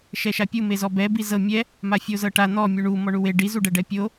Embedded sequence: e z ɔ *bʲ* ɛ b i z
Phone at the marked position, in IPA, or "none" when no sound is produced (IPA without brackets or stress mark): b